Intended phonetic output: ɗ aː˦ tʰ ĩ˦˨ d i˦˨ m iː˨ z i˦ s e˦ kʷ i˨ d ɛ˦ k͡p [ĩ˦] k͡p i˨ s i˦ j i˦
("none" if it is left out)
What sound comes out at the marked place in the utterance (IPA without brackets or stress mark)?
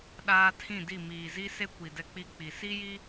i˦